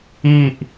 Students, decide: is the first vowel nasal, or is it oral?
oral